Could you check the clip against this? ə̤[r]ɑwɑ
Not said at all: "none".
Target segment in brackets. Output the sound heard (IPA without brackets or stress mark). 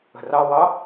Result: r